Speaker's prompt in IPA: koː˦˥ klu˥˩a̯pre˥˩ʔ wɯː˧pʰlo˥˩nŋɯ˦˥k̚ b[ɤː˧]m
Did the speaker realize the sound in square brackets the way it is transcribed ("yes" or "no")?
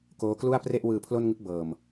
yes